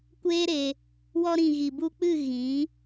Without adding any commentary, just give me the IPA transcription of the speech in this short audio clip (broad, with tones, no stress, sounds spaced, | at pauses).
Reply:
kʷ eː˦ ɾ e˧ | w ɔ˧ ɾ ĩ˨ ɣ i˨ b u˧ k͡p ɨ˦˨ ɣ ĩ˨˦